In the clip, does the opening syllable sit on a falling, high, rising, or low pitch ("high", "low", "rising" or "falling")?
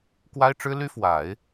high